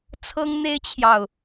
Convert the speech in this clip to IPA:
t͡sʰ ɤ˥ ŋ n̪ e˥ ɪ̯ t͡ɕʰ j ɑ˨ ʊ̯

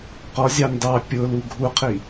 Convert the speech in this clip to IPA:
q ɔ zʲ ɑ n d ɑ pʲ ʊ l u ɡʱ u qʰ i

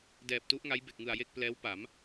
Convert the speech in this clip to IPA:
d ɛː˨˩ p̚ t u˦˥ ʔ ŋ a˦˥ j b e˨˩ k̚ ŋ ɯ˨˩ a̯ j e˥˩ k̚ p l ɛː˦˥ w p a˩˦ m

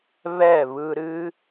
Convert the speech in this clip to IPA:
β ɛ˦˨ β ɯ˧ ɾ ɨ˦

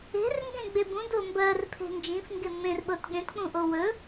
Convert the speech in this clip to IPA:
e̤ r ŋ ɡ ẽ ɡ͡b e b ũ d o m b ɜ r pʰ e̤ n d͡ʒ ĩ f ŋ ɡ e m ẽ r ɓ ɤ t ɠ ẽ t k͡p ũ ʔ o w ɵ

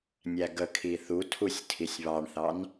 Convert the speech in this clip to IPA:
nʲ æ ɡ ə kʰ i θ u tʰ u sʲ tʰ i sʲ β ɑ ɳ θ ɑ n

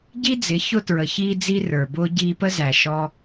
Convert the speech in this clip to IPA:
ɟ i˦ d͡z ɪ˨˦ ç ʊ˧ t ɹ ə˨ ç iː˧ d͡z i˦ r ə˞˨ b ʊː˦ ɟ iː˧ p ə˦ z æ˨ ʃ ɔ˦

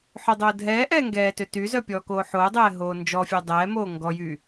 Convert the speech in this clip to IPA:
ħ ø dˤ oː dʱ ɛː ʔ ɛː ŋ ɡ ɛː t ø t y z œ pʲ ɔː k oː ħ oː dˤ ɛː ɦ oː n d͡ʒ ɔ fʲ œ dˤ ɛː m oː ŋ ɡ ɔ j y

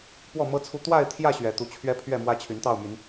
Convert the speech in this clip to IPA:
p w ɔ˥˨ m ɤ˦ t͡sʰ u˦ t̪ w a˥˨ ɪ̯ t̪ʰ j ä˥˨ ɕ ɥ ɛ˨˦ t̪ u˨˦ t͡ɕʰ ɥ ɛ˦ pʰ ɥ ɛ˥˨ m w ä˦ t͡ɕʰ y˨˦ n t̪ ɑ˥˨ ʊ̯ m y˨˦ n

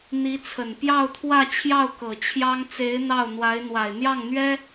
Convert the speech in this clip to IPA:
n̪ i˧˥ t͡sʰ ə˨˩ n p j ɑ˥˧ ʊ̯ t̪ʰ w ä˥˧ t͡ɕʰ j ɑ˥˩ ʊ̯ k ɤ˨˩ t͡ɕʰ j ɑ˥ ŋ t͡s e˧˥ ɪ̯ n̪ ɑ˥˩ ʊ̯ n̪ w a˧˥ ɪ̯ n̪ w a˨˩ ɪ̯ n̪ j ɑ˥˩ ŋ n̪ ɥ ɛ˥

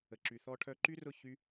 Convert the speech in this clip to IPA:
ə˨ ǁ y˨ θ ɔ˧ ʈʰ œ˧ ǃ y˦ r ʊ˦˨ ç y˦

